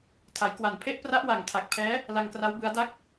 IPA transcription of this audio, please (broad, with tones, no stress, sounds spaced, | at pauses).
tʰ a˩˦ j k w a˨˩ n pʰ e˦˥ ʔ p r a˦˥ ʔ w a˨˩ ŋ tʰ a˨˩ k̚ pʰ ɛː˦˥ | l a˧ ŋ k r a˦˥ w b ɯ˦˥ a̯ d a˥˩ k̚